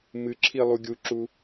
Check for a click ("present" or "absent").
present